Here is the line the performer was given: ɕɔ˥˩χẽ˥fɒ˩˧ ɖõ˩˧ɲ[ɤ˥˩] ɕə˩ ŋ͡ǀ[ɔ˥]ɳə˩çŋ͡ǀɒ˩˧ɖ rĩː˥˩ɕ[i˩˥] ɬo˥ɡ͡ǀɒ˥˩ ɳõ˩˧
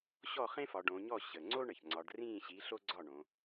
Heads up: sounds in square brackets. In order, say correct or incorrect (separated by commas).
incorrect, incorrect, correct